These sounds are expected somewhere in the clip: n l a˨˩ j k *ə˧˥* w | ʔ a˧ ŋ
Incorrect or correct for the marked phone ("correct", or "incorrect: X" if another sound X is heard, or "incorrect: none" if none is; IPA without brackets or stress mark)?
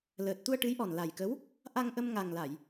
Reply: correct